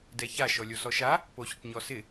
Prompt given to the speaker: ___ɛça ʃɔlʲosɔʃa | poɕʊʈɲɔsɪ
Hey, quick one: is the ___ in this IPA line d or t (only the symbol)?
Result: d